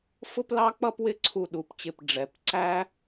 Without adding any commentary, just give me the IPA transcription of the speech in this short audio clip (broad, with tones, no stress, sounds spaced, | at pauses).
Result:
f ʊ˥ p l ɑ˥ k͡p ʌ˥ p w ɪ˥˧ ǀʰ u˧˩ ɗ u˩˧ p t͡ɕ ɪ˧˩ p ɖ͡ʐ ɛ˩˧ p ǀ æ˥